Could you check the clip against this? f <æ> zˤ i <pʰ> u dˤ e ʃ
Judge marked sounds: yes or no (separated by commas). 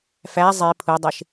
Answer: yes, yes